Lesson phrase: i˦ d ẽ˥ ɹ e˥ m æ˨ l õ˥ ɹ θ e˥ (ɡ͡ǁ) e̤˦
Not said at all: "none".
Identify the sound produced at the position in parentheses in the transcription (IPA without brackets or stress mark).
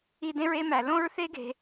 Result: ɡ